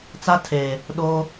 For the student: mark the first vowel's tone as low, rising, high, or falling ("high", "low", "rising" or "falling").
high